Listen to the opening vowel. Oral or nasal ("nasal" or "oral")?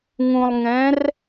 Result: nasal